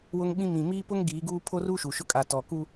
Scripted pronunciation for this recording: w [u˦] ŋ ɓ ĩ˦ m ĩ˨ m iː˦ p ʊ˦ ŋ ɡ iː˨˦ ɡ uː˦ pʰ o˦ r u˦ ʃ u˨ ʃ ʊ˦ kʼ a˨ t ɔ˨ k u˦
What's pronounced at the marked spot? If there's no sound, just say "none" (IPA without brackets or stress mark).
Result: ʊ˦